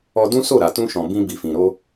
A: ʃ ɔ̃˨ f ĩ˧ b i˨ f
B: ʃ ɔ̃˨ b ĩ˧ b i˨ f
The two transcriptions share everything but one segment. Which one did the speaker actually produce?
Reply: B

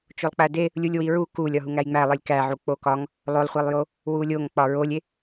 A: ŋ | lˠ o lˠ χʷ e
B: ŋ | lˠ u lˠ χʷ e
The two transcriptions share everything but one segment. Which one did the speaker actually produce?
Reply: A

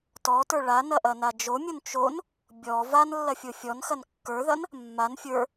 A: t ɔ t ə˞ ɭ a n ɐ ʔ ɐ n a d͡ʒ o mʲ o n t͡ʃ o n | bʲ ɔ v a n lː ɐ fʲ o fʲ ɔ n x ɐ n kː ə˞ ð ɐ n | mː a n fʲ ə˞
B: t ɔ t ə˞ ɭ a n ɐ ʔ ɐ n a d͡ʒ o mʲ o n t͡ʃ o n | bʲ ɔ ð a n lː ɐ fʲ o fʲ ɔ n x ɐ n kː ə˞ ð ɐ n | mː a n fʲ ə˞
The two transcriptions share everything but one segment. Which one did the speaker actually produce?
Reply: A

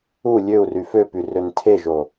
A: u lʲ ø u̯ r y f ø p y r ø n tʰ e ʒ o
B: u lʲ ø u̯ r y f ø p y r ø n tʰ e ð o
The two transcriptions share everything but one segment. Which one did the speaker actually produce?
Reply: A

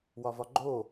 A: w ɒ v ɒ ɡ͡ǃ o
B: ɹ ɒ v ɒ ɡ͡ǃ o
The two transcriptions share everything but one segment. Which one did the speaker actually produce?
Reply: A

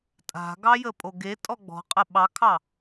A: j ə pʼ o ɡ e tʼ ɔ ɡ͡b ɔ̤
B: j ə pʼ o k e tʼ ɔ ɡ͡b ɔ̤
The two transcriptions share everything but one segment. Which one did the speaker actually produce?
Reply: A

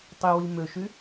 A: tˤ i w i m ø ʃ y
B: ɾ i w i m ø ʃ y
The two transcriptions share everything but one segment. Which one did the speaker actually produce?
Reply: A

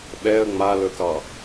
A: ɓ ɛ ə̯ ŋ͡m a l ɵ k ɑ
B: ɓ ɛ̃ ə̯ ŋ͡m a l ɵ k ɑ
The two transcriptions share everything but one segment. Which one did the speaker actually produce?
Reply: A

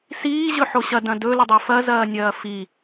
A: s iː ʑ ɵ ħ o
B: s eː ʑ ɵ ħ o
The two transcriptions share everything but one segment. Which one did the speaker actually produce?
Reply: A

